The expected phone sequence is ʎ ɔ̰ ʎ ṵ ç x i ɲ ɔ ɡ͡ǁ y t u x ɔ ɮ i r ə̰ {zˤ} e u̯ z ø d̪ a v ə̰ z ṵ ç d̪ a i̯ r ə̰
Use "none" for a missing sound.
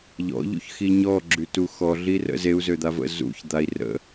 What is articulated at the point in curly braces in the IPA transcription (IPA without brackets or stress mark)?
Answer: z